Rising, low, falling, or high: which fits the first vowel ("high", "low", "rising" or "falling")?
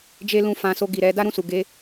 high